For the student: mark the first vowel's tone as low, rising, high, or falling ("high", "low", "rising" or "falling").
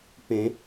rising